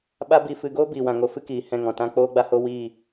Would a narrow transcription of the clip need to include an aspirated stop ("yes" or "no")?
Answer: no